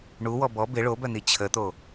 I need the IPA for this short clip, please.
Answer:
ɳ u w ɔ b ɔ b ɪ ɭ o b œ n̪ i t͡ɕʰ ə t̪ o

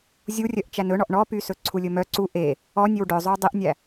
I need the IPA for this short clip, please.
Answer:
zʲ u rʲ œ ʔ t͡ʃ æ n ɵ ɳ ɔ ʔ ɳ ɔ p y s ɵ ǀʰ u lʲ ɵ m œ ǀ u ʔ e | ɔ nʲ ø w ɖ œ zˤ ʉ w dˤ e ʔ nʲ æ

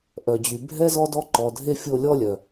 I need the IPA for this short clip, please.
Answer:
ʔ œ˨ d͡ʑ y˨ bʱ ɛ˥ z ɔ˦ d ɔ˦ ǃ ɔ˨ dʱ e˦ fʲ o˦ lʲ ɔ˥ lʲ œ˨

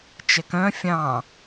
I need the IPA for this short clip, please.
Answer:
t͡ʃ ɛ k œ̃ fʲ ɑ̃

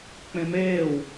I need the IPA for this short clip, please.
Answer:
k͡p ẽ m eː w

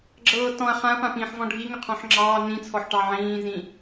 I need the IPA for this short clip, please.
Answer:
ɡ͡ǁ ɤː t ɔ̃ ɐ̯ χ ã ɐ̯ p ã p ĩː ħ v ɔ̃ ɖʱ i ŋ ʏ qʰ ɔ̃ ħ ŋ͡ǁ ɑː n ĩ t͡sʰ ɔ ħ ʈ ɑ ʕ ĩː z ĩ

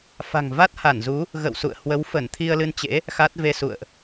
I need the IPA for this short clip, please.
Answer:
f a̤˨˩ ŋ v a˦˥ t̚ h a˧˩ n z u˨˦ | ɣ ə̰˧˨ w s ṵ˧˨ ə̯ h w ə˨˦ w f ə˧˩ n t̪ʰ i˧ ə̯ l ɨ˧ n t͡ɕ ḛ˧˥ | x a˦˥ t̚ v e˧ s ṵ˧˨ ə̯ ʔ

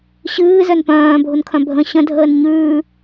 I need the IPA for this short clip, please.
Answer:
ɕ ɨː z œ n p œ̃ː bʱ ʊ n kʰ œ̃ bʱ ə̃ ɕ ə̃ dʱ əː n ɲ ʉː

